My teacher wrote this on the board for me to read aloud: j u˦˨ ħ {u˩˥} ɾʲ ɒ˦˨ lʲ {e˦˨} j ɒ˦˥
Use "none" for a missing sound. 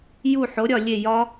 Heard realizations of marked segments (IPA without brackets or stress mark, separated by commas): o˩˥, e˦˨